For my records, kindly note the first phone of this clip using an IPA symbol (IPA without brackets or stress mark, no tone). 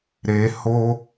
ɾ